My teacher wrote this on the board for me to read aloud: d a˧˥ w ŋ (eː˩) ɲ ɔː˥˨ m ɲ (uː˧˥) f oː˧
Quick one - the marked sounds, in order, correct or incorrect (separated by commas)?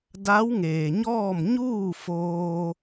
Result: correct, incorrect